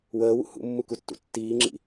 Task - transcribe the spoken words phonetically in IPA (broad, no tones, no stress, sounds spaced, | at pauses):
w əː w ṵ h ṵ mː u k u tː ṵ tː iː ŋ͡ǁ ḭ